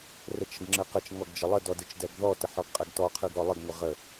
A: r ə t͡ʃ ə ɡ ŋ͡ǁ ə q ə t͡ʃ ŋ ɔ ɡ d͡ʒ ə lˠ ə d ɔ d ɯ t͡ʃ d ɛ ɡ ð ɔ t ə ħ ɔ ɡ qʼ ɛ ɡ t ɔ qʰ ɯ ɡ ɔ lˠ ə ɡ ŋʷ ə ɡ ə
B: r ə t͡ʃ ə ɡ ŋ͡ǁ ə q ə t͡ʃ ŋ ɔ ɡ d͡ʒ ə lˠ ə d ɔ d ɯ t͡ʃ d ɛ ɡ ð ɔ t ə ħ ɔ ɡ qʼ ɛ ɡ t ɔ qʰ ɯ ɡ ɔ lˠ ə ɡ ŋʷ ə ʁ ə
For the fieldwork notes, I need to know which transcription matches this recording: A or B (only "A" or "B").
B